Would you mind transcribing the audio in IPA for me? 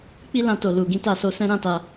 k͡p i˦ l ã˧ t o˨ l u˨ ɡ ĩ˨˦ t a˦˨ s o˨˦ s ɛ̃˦ ɾ ã˦ t a˧

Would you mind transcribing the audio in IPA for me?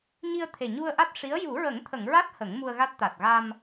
ɲ i˧ ə̯ t̪ʰ e˨˩ ɲ u˧ ə̯ ʔ a˦˥ t̚ ʂ i˧˥ ə̯ j u˨˩˦ ɹ ə˨˩˦ ŋ t̪ʰ ə˨˩˨ ŋ ɹ a˦˥ t̚ h ə˨˩˦ ŋ m u˧ ə̯ ɣ a˦˥ t̚ t̪ a˨˩ t̚ ɣ a˧ m

